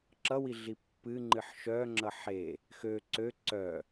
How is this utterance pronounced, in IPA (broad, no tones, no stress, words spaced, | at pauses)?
ǁʌwiɮi pːɨŋ͡ǃɨħ ʃœŋ͡ǁʌ ħe | xø ǀø ǀœ